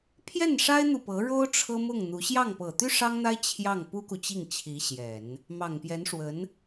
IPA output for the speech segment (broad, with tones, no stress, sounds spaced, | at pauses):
pʰ j ɛ˥˩ n ʂ a˥ ɪ̯ n̪ u˨ p ɤ˧˥ ɻ o˥ ʊ̯ ʈ͡ʂʰ ɤ˥ m ʊ˥˩ ŋ n̪ u˧˥ ɕ j ɑ˥˩ ŋ p ɤ˨˩ t̪ y˥ ʂ ɑ˥ ŋ n̪ a˥ ɪ̯ t͡ɕʰ j ɑ˥˩ ŋ p u˥ k u˨ t͡ɕ i˥˩ ŋ t͡ɕʰ i˧˥ ɕ j ɛ˨˩˦ n | m ɑ˨˩ ŋ p j ɛ˧˥ n ʂ w ə˧˥ n